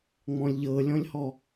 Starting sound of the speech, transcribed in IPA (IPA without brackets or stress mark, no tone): ŋ͡m